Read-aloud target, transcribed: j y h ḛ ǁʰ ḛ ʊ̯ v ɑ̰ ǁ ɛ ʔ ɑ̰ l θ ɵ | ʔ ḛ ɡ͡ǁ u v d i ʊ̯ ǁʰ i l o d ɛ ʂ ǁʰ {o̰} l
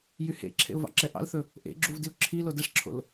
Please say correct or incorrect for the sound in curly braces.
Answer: correct